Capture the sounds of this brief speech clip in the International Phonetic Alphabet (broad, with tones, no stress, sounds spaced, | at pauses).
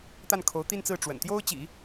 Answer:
t̪ a˥˩ n kʰ o˧˥ ʊ̯ t̪ i˥˧ n t͡s ɹ̩˥˩ ʈ͡ʂ w ə̰˨˩ n t̪ j o˥ ʊ̯ t͡ɕ ḭ˨˩˦